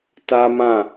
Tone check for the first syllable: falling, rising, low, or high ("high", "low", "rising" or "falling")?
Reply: high